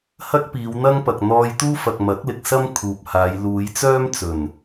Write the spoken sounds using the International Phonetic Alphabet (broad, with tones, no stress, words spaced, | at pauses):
hɐ˥k̚piː˨˧wn̪ɐ˥ŋpɐ˨k̚ n̪ɔː˧jt̪uː˥fɐ˨k̚ mɐ˨˥k̚lɪ˨k̚ sɐ˥m kʰuː˨p̚haː˨˧j luː˨˧jt͡sœː˥mt͡sɵ˨˩n